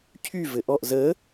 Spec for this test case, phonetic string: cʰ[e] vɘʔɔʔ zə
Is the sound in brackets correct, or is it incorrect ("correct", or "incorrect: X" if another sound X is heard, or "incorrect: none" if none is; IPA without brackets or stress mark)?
incorrect: y